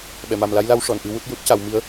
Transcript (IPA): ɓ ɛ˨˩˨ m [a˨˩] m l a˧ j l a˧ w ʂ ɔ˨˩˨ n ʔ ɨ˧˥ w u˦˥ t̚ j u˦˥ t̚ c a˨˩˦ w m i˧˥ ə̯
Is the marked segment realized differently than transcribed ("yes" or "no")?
no